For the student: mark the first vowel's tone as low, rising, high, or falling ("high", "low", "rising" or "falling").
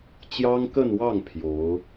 high